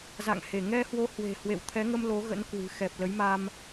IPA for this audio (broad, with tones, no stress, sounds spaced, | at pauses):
z a̰˧˨ ŋ h e˧˩ ŋ ɛ˧ h w o˨˦ h w e̤˨˩ h w ḛ˧˨ w t̪ʰ ɛ˨˦ ŋ ə˧ m l o˨˦ ɣ ə̰˧˥ n k w ɨ̤˨˩ x ɛ˨˩ p̚ l ə˨˦ j m a˧ m